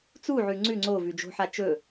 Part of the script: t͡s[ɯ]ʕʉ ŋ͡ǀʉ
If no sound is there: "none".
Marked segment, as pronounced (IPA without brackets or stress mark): u